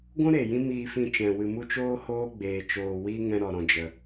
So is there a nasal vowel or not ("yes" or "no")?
yes